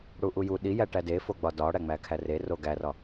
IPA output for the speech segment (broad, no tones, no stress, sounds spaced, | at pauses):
ɽ u ʔ u j u ɗ i j æ ʈ æ d e f o ɡ͡b ɒ d ɒ ɽ æ ŋ͡m æ kʰ æ r e r o ɡ æ r ɒ